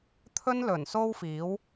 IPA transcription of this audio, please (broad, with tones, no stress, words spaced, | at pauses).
t̪ʰɵ˥nlɵ˨˩n so˥wfiː˨˥w